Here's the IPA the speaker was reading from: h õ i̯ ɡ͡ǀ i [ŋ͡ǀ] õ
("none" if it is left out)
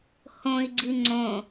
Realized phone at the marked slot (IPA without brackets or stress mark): ŋ͡ǀ